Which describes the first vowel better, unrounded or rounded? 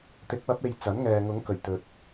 unrounded